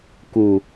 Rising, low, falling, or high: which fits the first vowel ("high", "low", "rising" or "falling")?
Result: low